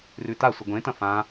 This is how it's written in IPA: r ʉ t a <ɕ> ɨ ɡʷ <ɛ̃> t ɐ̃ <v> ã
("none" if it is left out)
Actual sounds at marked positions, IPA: sʷ, ẽ, f

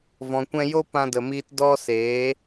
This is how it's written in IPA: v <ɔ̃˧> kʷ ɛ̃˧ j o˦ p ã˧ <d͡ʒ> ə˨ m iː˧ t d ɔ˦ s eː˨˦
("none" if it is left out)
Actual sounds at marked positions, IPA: ɔ̃˨, d

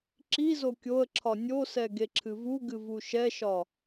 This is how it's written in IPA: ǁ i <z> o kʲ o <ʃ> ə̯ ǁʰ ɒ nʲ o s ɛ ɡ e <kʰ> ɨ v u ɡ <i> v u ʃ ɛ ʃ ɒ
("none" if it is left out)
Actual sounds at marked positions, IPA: z, none, ǁʰ, ɨ

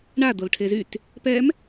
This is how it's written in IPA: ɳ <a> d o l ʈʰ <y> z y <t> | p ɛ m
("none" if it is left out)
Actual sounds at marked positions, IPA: a, e, t

